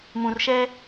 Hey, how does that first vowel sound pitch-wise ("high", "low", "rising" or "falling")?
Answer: low